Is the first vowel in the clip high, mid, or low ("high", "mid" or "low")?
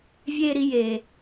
mid